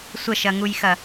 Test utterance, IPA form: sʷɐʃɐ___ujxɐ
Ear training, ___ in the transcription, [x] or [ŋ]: ŋ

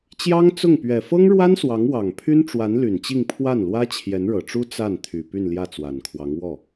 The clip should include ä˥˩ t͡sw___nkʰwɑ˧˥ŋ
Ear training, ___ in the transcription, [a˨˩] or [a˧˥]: a˨˩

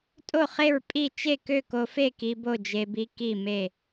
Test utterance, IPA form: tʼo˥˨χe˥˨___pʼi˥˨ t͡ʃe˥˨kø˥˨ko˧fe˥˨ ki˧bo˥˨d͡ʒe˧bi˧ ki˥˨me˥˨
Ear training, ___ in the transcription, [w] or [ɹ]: ɹ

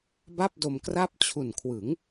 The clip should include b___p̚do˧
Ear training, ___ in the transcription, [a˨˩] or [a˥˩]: a˥˩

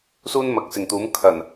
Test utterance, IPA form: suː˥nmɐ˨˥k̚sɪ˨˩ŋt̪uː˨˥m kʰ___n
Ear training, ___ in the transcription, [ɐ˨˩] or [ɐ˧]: ɐ˨˩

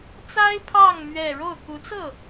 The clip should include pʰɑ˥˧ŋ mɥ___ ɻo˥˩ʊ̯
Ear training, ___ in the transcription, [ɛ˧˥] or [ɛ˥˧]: ɛ˥˧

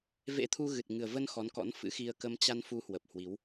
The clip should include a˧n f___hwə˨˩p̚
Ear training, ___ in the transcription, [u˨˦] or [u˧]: u˨˦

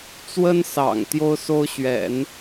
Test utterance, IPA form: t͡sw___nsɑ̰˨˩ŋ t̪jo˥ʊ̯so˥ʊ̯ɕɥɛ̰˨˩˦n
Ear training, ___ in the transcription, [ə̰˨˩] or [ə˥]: ə˥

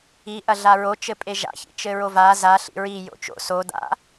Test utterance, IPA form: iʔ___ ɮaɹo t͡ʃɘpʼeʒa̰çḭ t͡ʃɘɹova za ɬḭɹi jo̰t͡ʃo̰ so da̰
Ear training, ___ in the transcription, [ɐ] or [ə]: ɐ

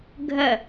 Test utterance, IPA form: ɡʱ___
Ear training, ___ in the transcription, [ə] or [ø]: ə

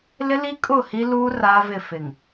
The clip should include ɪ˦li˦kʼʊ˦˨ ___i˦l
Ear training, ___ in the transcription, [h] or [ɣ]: h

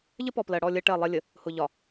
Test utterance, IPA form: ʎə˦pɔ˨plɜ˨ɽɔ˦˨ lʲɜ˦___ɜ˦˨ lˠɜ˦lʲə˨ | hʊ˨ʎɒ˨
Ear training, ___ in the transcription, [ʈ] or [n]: ʈ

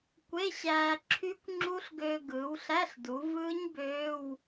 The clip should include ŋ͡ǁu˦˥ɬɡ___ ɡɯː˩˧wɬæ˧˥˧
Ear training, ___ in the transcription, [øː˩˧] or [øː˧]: øː˧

